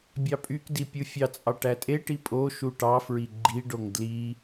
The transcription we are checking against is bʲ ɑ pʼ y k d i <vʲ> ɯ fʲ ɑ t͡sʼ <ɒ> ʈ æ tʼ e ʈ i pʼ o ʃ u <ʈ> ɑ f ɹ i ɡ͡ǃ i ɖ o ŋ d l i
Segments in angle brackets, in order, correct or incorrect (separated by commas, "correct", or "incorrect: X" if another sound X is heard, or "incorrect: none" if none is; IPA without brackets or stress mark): incorrect: pʲ, incorrect: ɑ, correct